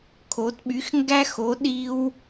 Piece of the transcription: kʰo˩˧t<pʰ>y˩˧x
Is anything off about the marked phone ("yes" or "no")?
yes